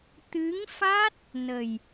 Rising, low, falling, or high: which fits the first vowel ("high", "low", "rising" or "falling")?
rising